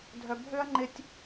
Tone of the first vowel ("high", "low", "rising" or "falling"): low